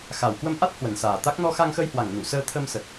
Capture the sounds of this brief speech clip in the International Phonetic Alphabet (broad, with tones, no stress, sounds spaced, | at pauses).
x a˨˩ w k w ə˧ m ʔ a˦˥ t̚ h w ə˨˩ n s aː˨˩ t̪ a˦˥ k̚ n ɔ˧ x a˧ ŋ x ə˧ j h w a˨˩ ŋ n u˧˩ s əː˧ t̪ʰ ə˧ m s ə˨˩ t̚